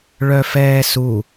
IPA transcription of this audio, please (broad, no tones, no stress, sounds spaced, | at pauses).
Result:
ɭ œ f ɛː s u